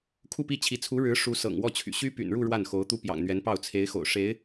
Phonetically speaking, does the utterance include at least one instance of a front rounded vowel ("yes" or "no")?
yes